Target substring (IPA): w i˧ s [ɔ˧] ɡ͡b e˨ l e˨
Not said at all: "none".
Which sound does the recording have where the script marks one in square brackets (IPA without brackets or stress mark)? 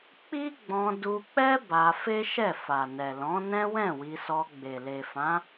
ɔ˧